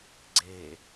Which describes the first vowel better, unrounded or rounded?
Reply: unrounded